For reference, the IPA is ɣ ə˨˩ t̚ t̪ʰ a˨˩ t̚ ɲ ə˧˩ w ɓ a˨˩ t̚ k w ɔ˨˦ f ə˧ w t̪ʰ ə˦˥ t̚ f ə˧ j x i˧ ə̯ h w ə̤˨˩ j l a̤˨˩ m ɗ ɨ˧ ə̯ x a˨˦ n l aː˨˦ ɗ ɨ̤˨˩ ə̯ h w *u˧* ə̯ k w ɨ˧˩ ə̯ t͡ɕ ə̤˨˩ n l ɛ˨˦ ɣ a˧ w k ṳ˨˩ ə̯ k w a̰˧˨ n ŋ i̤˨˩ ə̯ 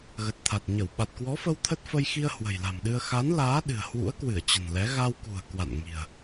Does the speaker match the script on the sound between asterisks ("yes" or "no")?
no